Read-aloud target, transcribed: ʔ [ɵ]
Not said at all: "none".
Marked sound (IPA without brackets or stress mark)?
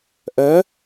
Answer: œ